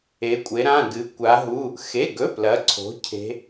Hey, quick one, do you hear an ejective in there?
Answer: yes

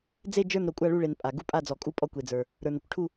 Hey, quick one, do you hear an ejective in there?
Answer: yes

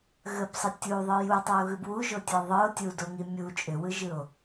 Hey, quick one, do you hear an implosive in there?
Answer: no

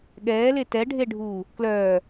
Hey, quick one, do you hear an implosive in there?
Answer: yes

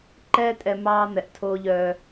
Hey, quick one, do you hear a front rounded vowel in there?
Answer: yes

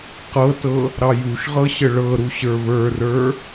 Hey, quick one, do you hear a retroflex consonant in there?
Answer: yes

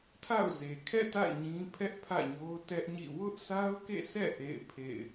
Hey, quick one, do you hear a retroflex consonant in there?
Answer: no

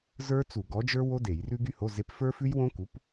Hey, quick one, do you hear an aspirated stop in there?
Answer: no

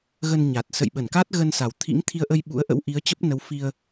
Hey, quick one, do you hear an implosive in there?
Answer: yes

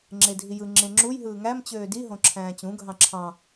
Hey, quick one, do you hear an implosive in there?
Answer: no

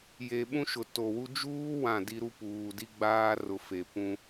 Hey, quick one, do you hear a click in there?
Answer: no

